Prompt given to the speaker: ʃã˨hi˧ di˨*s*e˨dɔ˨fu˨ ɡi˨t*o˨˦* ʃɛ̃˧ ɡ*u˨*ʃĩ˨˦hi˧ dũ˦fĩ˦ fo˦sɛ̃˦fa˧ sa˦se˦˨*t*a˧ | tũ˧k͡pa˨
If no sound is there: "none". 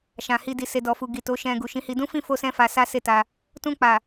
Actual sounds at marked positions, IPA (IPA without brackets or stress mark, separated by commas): s, o˨˦, u˨, t